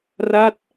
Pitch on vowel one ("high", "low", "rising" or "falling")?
falling